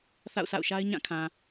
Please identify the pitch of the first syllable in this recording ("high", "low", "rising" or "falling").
falling